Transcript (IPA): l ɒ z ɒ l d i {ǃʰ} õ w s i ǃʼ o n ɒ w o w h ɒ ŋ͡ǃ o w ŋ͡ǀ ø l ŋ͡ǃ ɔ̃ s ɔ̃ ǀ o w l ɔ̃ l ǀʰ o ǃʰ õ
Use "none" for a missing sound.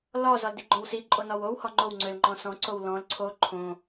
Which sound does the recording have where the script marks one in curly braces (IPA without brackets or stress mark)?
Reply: ɡ͡ǃ